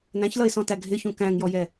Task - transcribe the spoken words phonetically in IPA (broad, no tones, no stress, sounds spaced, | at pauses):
n æ̃ ç l ʌ ɪ̯ s ɔ̃ t æ ɡʱ ɪ ç ũ k æ̃ ŋ j ɔ j ɛ